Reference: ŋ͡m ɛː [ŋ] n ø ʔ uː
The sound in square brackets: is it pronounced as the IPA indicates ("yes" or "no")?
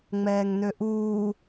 yes